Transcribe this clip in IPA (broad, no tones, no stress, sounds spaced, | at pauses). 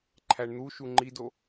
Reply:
ǃʰ æ ɳ n̪ u ʃ u ŋ͡ǃ i d o